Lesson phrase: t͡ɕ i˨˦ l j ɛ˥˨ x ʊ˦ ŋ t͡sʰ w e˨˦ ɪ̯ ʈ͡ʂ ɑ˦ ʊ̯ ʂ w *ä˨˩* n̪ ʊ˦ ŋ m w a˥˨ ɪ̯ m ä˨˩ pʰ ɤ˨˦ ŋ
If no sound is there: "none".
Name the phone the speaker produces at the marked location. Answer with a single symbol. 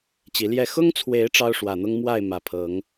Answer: ä˨˩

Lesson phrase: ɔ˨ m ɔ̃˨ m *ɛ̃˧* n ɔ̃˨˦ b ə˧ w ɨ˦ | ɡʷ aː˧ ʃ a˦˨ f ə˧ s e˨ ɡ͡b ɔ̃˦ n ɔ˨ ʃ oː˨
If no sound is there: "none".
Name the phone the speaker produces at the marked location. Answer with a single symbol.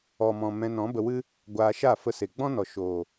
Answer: ɛ̃˧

